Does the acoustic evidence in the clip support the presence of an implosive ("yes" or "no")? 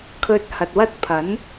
no